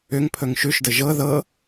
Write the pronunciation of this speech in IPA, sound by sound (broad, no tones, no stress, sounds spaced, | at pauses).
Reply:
ʏ ŋ pʰ ɵ ŋ ʃ ʉ ʃ d ə ʒ ɤ ð ɤ